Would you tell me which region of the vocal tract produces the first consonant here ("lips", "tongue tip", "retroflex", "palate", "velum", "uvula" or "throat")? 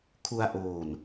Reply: velum